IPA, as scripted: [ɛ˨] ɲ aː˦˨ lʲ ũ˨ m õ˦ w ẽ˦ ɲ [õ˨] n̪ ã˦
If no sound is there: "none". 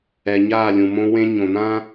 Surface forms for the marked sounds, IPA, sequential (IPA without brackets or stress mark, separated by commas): ɛ˨, õ˨